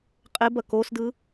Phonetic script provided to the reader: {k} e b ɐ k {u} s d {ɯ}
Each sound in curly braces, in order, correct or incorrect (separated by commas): incorrect, incorrect, correct